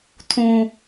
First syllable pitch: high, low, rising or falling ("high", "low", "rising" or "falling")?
high